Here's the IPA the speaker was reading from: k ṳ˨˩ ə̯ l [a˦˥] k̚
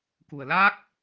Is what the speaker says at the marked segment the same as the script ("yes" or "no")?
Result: yes